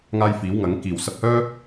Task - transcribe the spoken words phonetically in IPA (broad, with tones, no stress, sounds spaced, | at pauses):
ŋ aː˧ j f iː˨˥ w ŋ ɐ˨˥ ŋ k iː˨˩ w s ɐ˧ p̚ h œː˥